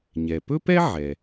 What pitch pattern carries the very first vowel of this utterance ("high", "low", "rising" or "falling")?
low